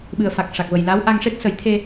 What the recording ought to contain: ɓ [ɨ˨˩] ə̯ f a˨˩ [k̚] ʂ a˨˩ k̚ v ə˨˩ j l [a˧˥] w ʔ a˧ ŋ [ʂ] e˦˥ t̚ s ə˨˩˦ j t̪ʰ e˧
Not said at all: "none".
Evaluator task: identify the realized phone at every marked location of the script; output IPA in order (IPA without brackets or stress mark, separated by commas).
ɨ˨˩, k̚, a˧˥, ʂ